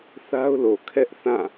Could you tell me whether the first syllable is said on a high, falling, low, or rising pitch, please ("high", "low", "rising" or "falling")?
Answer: high